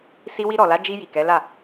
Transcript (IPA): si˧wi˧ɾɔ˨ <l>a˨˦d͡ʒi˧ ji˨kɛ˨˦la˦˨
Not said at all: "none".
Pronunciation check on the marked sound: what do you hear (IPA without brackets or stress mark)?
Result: l